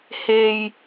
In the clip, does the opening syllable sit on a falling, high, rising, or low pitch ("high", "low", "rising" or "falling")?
low